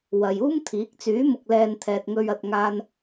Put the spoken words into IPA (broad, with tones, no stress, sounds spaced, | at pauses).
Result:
w ɐ˨ j uː˥ m t̪ʰ iː˨˥ k̚ t͡s yː˨˥ m ʊ˨ k̚ l ɛː˨ n t̪ʰ ɛː˨ t̚ ŋ ɵ˧ ɥ ɐ˨ t̚ ŋ aː˧ n